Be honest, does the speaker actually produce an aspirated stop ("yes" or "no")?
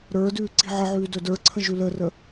yes